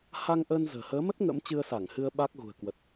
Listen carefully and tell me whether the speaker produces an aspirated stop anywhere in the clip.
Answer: no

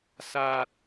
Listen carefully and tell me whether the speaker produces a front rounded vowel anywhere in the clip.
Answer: no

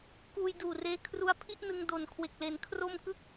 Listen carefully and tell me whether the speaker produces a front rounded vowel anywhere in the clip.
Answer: no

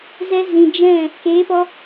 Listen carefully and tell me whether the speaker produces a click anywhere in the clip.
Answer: no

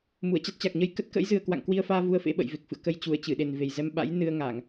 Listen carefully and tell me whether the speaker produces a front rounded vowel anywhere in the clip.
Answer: no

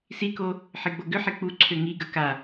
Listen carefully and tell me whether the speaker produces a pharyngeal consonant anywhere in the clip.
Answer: yes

